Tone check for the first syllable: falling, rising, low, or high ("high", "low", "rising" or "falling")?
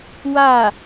falling